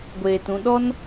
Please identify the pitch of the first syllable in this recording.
low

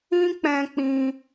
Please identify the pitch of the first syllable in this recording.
high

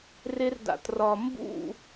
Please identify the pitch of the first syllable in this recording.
high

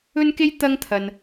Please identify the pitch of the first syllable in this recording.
high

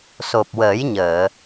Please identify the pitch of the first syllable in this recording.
low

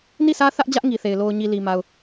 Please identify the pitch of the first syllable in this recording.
falling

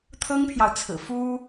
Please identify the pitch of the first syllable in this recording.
high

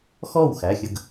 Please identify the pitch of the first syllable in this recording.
falling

